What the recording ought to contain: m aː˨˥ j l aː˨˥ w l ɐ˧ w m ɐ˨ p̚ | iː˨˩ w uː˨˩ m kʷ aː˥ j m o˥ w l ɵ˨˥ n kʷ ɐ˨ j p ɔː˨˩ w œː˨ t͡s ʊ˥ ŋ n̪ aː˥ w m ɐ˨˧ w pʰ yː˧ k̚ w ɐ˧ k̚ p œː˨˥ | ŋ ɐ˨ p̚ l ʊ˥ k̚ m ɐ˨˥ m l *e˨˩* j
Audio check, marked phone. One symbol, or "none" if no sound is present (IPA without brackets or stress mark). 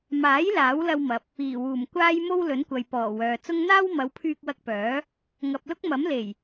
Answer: e˨˩